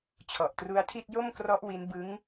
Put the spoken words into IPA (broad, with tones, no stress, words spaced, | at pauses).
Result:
t͡ɕʰɔ˨˩ʔtru˦˥a̯tʰi˥˩t̚ jo˥˩mkrɔ˦˥ʔ wi˦˥nbɯ˦˥ŋ